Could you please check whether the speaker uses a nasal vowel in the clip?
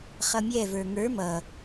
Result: no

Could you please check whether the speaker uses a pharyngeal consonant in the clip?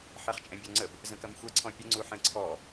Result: yes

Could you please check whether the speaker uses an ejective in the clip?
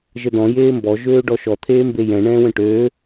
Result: no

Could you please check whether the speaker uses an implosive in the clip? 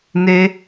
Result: no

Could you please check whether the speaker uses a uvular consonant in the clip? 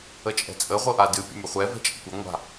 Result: yes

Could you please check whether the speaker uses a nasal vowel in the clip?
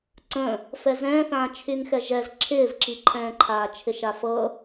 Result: yes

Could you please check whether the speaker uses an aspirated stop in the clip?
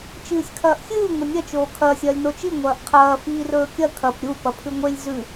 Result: yes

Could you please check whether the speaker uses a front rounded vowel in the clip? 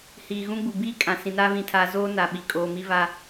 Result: no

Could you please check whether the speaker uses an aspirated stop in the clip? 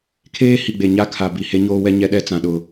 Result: yes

